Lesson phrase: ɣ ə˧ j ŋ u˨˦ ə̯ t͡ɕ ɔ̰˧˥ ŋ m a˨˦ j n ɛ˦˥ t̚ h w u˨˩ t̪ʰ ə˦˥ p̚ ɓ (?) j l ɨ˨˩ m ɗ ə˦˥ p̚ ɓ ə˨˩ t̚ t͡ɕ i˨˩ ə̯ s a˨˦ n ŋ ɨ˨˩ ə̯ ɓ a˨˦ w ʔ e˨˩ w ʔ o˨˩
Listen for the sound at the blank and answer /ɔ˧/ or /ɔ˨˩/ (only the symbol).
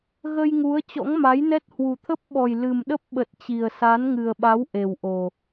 ɔ˨˩